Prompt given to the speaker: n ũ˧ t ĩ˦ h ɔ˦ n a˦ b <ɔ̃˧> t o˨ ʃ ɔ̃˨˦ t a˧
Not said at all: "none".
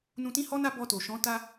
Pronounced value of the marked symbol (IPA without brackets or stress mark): ɔ˧